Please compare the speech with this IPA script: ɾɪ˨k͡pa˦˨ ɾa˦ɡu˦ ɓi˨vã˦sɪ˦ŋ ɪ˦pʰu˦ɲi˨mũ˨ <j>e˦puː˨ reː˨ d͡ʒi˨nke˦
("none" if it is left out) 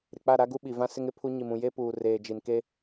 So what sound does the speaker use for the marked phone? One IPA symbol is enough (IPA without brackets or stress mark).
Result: j